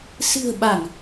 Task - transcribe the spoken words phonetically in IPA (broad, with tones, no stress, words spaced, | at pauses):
sɨ̤˨˩ə̯ ɓa˧˩˨ŋ